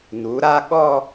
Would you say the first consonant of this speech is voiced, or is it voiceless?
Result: voiced